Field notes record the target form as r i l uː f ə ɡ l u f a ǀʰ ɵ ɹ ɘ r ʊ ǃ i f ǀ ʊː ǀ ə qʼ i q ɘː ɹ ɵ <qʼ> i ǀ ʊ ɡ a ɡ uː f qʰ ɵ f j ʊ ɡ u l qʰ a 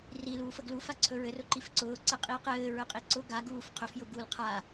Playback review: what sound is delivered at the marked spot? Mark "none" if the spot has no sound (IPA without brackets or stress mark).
qʼ